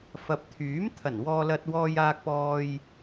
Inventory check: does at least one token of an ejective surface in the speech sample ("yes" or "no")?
no